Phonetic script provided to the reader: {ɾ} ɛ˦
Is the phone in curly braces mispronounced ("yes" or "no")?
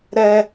no